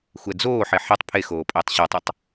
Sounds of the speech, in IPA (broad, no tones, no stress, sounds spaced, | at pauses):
xʷ ɛ d͡z oː ħ e ħ ɛ tˤ pʰ e x oː pʼ ɪː tˤ ɕ ɔ tˤ o tˤ